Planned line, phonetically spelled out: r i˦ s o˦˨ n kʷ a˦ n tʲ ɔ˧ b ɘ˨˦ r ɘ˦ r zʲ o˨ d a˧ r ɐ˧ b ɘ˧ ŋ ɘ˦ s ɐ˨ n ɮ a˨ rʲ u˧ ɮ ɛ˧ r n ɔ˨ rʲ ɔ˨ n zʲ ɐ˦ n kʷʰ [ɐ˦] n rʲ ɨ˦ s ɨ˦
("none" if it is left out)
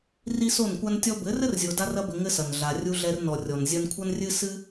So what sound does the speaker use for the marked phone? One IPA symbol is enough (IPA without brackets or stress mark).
ɐ˦